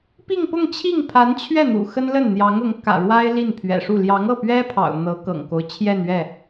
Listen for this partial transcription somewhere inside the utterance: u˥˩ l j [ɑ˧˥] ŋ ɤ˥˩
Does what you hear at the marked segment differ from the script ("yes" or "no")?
no